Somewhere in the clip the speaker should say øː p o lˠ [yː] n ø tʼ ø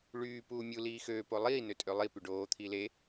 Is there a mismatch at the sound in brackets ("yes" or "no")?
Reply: yes